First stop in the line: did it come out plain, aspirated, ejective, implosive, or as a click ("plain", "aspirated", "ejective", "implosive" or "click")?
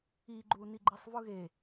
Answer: click